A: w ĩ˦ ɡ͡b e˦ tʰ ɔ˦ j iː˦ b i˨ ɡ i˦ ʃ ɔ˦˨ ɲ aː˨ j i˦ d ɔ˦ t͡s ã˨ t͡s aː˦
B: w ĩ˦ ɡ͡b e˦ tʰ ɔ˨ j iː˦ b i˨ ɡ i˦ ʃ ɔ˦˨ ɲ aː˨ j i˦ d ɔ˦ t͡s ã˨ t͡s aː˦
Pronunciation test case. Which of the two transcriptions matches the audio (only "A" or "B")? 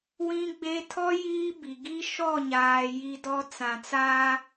A